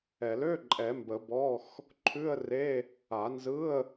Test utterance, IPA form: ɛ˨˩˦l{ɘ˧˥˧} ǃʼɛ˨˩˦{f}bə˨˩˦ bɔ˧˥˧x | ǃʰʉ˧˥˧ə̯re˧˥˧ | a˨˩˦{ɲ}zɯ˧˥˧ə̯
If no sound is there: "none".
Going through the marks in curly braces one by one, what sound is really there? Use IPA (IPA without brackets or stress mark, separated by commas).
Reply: ø˧˥˧, m, n